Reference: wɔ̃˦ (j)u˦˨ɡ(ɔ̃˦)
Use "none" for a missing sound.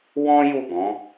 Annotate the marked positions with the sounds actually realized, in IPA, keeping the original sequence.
j, ɔ̃˨˦

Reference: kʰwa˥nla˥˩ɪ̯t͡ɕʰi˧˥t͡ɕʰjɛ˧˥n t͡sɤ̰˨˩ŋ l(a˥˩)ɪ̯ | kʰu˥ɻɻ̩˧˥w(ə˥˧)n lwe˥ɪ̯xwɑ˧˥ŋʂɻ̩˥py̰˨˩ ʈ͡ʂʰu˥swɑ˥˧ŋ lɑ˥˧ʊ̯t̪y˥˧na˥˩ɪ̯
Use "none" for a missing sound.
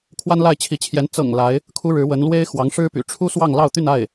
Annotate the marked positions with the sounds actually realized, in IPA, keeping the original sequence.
a˧˥, ə˧˥

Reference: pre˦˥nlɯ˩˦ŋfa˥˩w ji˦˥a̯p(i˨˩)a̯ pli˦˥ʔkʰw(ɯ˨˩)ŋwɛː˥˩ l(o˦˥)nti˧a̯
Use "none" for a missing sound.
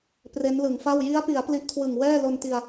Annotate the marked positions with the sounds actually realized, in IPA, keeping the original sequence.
i˩˦, ɯ˨˩, o˧

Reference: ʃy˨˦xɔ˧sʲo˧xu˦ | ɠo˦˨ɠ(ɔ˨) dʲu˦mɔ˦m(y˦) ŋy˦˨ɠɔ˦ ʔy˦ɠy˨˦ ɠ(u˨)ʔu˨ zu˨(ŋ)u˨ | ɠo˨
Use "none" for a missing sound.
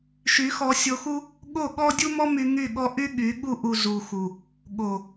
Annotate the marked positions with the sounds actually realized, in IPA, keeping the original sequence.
ɔ˦, y˧, u˧, x

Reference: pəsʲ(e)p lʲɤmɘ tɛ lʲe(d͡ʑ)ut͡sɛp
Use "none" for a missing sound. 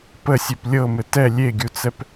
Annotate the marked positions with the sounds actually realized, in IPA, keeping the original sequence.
e, ɡʲ

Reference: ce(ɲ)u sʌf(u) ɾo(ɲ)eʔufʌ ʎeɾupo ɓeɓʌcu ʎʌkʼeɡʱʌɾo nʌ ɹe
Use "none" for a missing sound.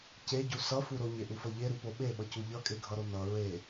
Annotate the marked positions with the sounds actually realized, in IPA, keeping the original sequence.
ɟ, u, ɲ

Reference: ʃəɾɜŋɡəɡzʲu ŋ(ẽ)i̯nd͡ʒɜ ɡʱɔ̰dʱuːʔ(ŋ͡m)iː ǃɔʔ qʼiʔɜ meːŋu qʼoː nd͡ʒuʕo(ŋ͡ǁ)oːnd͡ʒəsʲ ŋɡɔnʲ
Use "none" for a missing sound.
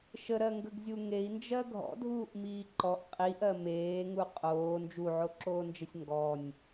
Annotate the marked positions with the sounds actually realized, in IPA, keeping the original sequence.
e, m, ǁ

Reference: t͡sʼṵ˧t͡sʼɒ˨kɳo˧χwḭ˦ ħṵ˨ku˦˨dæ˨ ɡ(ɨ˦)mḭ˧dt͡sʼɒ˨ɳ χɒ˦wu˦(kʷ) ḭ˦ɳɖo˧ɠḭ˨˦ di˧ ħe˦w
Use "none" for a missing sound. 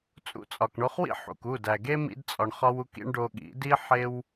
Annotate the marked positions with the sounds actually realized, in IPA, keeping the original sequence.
e˦, k

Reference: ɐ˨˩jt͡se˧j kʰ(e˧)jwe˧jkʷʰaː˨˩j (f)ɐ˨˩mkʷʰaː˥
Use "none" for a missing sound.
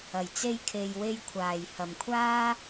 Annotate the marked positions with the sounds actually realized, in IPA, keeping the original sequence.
e˨, h

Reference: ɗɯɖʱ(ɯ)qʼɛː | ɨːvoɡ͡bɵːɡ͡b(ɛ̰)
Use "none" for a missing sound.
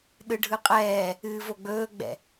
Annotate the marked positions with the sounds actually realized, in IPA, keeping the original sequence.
ɯ, ɛ̰

